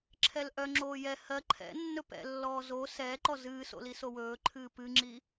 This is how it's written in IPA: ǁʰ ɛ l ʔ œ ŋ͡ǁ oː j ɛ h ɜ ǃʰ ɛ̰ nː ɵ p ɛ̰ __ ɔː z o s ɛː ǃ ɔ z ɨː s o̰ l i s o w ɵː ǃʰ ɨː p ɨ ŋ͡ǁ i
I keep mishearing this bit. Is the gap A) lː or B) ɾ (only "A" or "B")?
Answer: A